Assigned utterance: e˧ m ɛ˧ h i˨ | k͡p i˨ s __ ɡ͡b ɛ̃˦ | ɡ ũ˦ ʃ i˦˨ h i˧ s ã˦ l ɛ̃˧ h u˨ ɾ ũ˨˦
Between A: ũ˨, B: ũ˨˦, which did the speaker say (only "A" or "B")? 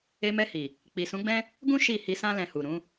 B